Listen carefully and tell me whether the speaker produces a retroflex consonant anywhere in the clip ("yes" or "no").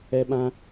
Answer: no